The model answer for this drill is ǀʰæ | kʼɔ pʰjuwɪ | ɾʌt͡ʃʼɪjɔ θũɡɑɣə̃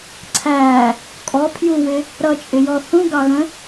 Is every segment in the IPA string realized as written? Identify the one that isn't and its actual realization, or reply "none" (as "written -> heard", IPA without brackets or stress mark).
none